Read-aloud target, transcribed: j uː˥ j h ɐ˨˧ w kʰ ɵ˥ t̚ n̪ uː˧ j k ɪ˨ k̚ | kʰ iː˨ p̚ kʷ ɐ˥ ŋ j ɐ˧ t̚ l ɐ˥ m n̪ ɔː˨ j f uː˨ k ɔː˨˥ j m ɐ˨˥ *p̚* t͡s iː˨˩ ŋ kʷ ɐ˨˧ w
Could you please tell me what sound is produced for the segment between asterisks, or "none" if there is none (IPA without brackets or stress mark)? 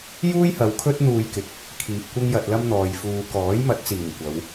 t̚